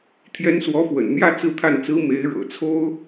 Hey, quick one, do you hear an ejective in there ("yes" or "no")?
no